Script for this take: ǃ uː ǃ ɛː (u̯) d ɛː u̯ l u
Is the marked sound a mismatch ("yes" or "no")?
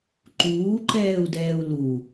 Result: no